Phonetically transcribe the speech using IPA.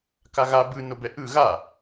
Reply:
k a ɣ a b ɯ n o b ɛ ʔ ɯ ɣ a

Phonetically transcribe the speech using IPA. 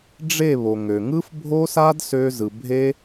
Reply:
ɖ͡ʐ e˦˨ β o˨ ŋ ø˨ ŋ ɯ˦ f bʱ o˦ s a˦ d s ø˦ z ɯ˧ bʱ e˦

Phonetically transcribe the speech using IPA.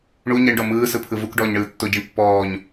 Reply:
ɳ u ɲ i ɳ ɖ ɔ m ɯː s ɯ pʰ ɯ v u k ɖ ɔː ɲ ɳ ɯː tː o ɟ i ɳ pː ɔː ɲ

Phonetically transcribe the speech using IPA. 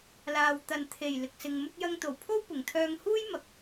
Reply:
l aː˨ w t̪ ɐ˨ n t̪ʰ e˨˩ j l ɪ˨ k̚ s ɪ˨ ŋ m ʊ˥ k̚ j ɐ˧ ŋ t̪ o˨˩ w pʰ o˥ w p ʊ˨˩ ŋ t̪ʰ œː˧ ŋ h uː˥ j m ɐ˨ k̚

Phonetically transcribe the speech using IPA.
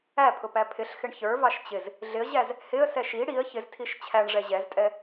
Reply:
æ pʰ ʊ p æ pʰ ɪ ɬ x ɪ ɳ ç ə˞ v ɑ ʃ t͡ɕ ɪ z | ɮ ɪ ə̯ ʑ æ z | h ɪ ə̯ s ɛ ʃ i ɽ i ə̯ ç ɪ z tʰ i ʃ t͡ɕʰ æ ɳ ʐ ɛ ʑ ɛ z tʼ ɛ

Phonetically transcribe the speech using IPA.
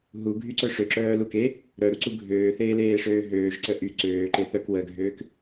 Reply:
ɦ u ɡʱ y ǀ œ ʂ ø ǁ œː l u k e | ɾ œ ɾ u ǀ u ɡʱ øː θ eː l eː ʂ øː ɦ øː ʒ ǀ ə ʔ y ǀ øː ǃ e θ œ k w ə ɡʱ øː k

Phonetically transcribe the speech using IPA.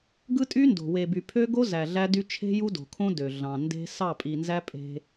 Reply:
ɡ ɯ˦ tʼ y˦ n d o̤˨ w e˨ b y˨ pʰ ø˦ ɡ o˦ z æ˨ ɮ æ˦ d y˦ t͡ʃʰ e̤˦ j u˦ d o̤˨ kʰ õ˦ d ø˨ ɮ ɑ̃˨ n d e̤˦ s ɑ˦˨ pʼ i˨ n z æ˦ pʼ e̤˦

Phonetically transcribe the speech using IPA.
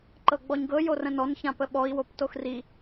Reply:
ǃ ɤ ɡ͡b ɔ ɲ ɡ ɤ j o r ə̃ n ɔ n ç ã p ə ɓ ɔ i̯ w o p t o x r i

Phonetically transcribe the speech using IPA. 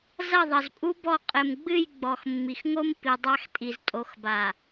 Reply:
z ɐ˦˨ ðˤ ɐ˨ z pʼ u˦ b ɔ˦˨ qʼ ɘ˨ m ɡ͡b ɨ˦˨ j ɡ͡b ɔ˨ x mː i˨ x ŋ o˦ m p i˨ dˤ a˦ x tʼ i˨ z tʼ o˨ x b a˨

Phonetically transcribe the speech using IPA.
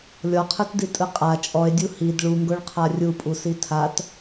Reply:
lʲ ɔ qʰ ɯ t d i tʼ ɯ qʼ a t͡ʃʼ ɔ e̯ dʲ u h i d ɭ u ŋ ɡ o ɭ qʰ a rʲ u pʼ u s i tʰ a t

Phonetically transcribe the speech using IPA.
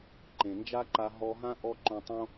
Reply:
ǃ ẽ˩ n d͡ʒ a˥ ǃ a˧ ɦ ɔ˧ ɦ ã˥ ʔ ɔ˥ ǃ õ˧ tˤ õ˥

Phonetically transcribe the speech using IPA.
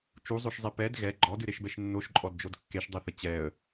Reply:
t͡ʃ u zˤ o ʃ zˤ ɛ p ɛ d ɣ ɛ ɡ͡ǃ ɔ d ɨ ɾ e ʃ b ɛ ʃ nː o ʃ ǃʼ ɔ d d͡ʒ o d kː e ʃ dˤ ɛ θ ə t͡ɕ ɛ ə̯

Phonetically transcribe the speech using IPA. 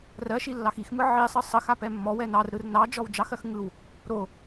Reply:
r ɜ ʃ i lː ɑ x i x m ɯ ʕ i sˤ ɯ sˤ ə x a p ɛ mː ɔ w ɛ n ɑ r ɾ ɯ r n ɑ d͡ʒ ɔ w d͡ʒ ɑ x ɜ x ŋ ɯ w | ɾ o

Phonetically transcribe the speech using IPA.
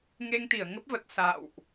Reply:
ŋ e˧ ŋ t̪ i˧˩ ə̯ ŋ ə˦˥ p̚ v ə˨˩ t̚ s a̰˧˨ w ʔ

